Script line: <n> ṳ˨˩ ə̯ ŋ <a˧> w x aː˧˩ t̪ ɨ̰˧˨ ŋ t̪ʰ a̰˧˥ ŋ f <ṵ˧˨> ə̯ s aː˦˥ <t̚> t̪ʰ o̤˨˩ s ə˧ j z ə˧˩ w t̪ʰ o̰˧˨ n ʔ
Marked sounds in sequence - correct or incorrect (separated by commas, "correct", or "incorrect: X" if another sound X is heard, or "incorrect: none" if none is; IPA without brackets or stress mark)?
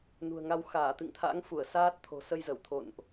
correct, correct, incorrect: u˧˩, correct